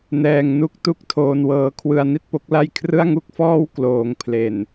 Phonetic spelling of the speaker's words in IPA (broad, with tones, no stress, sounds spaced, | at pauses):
n ɛː˧ ŋ n u˦˥ k̚ t u˥˩ k̚ tʰ oː˧ n w ɤː˧ kʰ w ɯ˧ a̯ n i˥˩ t̚ p o˦˥ k̚ l a˥˩ j kʰ r ɯ˥˩ a̯ ŋ u˥˩ k̚ f ɔː˥˩ w k l oː˩˦ ŋ pʰ l e˨˩ n